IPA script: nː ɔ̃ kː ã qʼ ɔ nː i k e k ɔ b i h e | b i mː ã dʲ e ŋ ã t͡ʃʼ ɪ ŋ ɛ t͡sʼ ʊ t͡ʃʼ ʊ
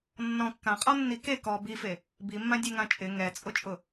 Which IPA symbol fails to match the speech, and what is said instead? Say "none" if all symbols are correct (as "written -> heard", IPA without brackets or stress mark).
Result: h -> f